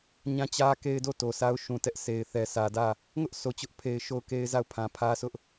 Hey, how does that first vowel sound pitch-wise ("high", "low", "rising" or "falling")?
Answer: falling